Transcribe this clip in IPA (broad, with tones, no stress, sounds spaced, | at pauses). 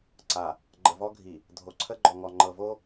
ǀ a˨ | ɡ͡ǃ ə˨ v ɔ˦ ɡʱ i˨ | dʱ o˨ ǀʰ ə˦ ɡ͡ǃ ɔ˨ ŋ ɔ˨ ŋ͡ǃ ɤ˨ v o˦